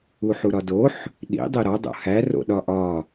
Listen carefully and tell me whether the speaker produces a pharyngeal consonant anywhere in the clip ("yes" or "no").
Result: yes